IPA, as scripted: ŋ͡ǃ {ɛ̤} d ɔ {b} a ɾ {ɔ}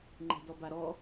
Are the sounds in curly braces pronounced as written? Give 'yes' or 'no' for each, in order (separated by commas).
yes, yes, yes